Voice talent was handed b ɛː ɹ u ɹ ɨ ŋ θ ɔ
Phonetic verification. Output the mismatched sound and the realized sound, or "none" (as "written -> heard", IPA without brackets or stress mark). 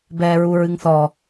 none